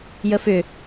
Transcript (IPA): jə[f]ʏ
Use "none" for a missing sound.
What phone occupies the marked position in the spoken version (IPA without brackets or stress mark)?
f